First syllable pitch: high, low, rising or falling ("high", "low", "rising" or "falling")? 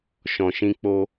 low